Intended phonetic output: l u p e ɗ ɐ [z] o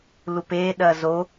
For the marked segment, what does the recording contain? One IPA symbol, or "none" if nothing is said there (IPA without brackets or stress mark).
z